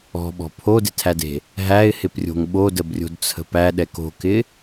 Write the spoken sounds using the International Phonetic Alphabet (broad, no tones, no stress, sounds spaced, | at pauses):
ɔ̤ ɓ ɔ̤ pʰ o d ɪ tʰ æ d e̤ | ɦ æ ɪ̯ h ɪ p rʲ o̤ ŋ ɓ o d ə b rʲ o̤ d t͡sʰ ə̤ p æ ɗ ɛ k o̤ k ɪ